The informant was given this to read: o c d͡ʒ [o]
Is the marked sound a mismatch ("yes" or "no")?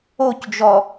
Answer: yes